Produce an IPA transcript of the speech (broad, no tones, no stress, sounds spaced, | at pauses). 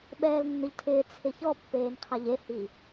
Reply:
ɓ ɛː l nː ʊ ʎ tʰ ɪː t͡sʰ ɪ ç ɔ pː eː n qʰ a ʎ e h i